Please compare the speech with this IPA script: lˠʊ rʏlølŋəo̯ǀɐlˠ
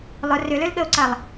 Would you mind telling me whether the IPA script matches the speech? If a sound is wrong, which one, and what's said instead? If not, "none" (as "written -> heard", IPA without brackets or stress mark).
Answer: ŋ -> ɠ